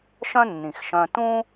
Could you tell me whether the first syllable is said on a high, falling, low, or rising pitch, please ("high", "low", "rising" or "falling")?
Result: high